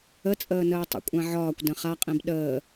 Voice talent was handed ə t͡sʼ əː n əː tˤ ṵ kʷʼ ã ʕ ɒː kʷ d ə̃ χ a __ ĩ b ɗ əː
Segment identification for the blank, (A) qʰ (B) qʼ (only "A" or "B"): B